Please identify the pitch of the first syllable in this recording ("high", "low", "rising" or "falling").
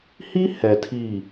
high